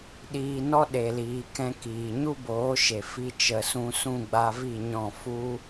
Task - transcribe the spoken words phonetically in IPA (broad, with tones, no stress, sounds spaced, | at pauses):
ɗ iː˧ n ɔ˦ ɗ e˨ l iː˨ k ɛ̃˧ k iː˨ ɲ u˦ b oː˨˦ ʃ e˨ f i˧ t͡ʃ ə˨ s ũ˧ s ũ˦˨ ɡ͡b a˧ v i˦˨ ɲ ɔ̃˦˨ f u˦